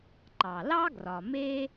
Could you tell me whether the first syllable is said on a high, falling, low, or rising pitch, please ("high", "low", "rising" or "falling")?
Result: low